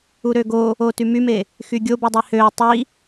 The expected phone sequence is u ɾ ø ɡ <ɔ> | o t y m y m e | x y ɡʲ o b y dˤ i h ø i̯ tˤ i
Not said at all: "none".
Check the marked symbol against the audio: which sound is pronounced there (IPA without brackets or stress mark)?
o